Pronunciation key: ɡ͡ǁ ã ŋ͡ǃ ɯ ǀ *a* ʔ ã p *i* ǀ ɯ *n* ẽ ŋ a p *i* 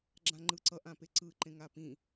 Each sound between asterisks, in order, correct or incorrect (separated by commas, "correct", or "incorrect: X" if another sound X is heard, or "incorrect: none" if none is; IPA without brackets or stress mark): incorrect: ʌ, incorrect: e, incorrect: ǃ, incorrect: ĩ